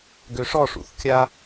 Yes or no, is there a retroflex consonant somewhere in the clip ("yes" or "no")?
yes